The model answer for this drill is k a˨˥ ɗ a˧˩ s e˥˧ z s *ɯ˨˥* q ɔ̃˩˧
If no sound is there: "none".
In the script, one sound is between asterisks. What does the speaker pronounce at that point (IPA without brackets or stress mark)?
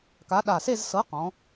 ɤ˨˥